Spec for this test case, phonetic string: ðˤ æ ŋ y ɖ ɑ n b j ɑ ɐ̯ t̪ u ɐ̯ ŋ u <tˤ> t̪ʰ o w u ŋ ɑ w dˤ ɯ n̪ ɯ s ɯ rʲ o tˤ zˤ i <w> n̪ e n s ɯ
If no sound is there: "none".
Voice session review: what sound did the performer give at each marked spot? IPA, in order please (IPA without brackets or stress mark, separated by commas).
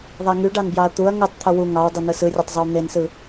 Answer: tˤ, w